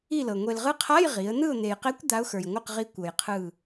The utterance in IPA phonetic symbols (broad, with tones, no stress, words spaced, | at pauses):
i˦˨lɤ˨ ŋʷe˨lʁɯ˧˥qʰa˧˥˧j ʁi˩˥ə̯ n̪ɯ˦˨ʊ̯n̪e˨jqe˧˥kʷ d̪a˧˥ʊ̯xə˞˨jŋʷɯ˦˨qʁi˧˥ kʷɤ˨jqʰɯ˦˨